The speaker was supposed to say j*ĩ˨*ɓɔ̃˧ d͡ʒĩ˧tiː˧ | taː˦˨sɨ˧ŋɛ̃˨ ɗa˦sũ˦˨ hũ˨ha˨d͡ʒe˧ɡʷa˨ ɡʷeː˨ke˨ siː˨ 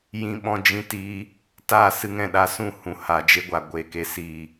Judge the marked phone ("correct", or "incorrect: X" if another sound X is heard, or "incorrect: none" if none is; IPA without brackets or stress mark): incorrect: ĩ˧